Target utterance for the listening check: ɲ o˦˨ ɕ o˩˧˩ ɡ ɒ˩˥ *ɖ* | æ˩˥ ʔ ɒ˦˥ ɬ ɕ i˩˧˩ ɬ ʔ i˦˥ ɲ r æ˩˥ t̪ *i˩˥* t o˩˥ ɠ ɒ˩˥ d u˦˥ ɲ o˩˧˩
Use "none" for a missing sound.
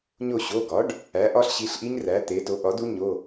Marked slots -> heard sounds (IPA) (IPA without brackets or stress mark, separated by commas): ɖ, e˩˥